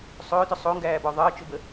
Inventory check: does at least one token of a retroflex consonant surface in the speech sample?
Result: no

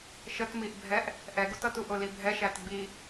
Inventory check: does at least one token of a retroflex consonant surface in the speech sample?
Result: no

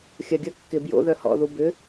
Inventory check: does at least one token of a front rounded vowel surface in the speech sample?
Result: yes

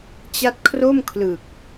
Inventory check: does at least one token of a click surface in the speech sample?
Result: no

